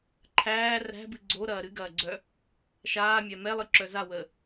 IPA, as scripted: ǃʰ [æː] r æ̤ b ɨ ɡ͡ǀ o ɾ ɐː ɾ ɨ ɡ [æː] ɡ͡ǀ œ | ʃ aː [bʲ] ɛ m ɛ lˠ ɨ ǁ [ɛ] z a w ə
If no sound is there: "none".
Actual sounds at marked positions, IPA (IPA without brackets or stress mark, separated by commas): æː, ɐː, mʲ, œ